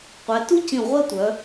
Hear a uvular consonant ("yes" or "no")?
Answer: yes